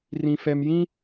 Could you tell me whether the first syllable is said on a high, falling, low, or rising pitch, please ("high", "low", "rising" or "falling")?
high